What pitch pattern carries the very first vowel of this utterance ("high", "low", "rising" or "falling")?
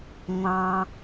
low